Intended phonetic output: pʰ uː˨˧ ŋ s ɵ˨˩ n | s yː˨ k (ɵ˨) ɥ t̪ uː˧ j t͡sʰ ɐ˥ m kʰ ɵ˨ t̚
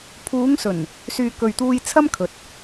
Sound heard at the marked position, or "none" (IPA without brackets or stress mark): ɵ˨